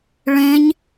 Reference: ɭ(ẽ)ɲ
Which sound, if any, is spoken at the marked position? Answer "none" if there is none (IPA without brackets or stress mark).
ẽ